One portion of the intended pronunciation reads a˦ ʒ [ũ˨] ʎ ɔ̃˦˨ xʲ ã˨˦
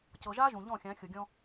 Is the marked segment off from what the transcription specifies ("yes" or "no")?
no